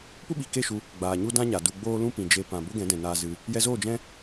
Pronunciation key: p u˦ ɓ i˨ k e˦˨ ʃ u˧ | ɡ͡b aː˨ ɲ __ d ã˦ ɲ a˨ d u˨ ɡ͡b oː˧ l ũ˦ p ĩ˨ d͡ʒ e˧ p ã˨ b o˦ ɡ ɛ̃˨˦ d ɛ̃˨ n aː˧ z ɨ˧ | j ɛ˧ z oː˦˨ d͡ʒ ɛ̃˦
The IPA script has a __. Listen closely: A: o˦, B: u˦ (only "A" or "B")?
B